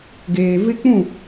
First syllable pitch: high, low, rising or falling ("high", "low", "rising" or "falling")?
low